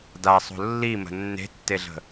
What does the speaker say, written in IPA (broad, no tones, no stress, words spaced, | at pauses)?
dasˤo̤ lːimə̤ nːe̤tːeɮə̤